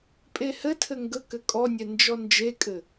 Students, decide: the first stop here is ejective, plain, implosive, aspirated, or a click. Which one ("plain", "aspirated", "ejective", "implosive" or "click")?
ejective